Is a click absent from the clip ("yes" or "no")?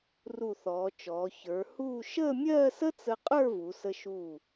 yes